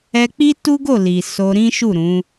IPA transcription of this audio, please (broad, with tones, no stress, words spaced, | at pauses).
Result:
ɛ˧k͡pi˦tu˦ ɡo˦˨li˨ so˧ɾĩ˦ ʃu˦˨ɾũ˨˦